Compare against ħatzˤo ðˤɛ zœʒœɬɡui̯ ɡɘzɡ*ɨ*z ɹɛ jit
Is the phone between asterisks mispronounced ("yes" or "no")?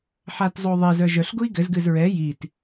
no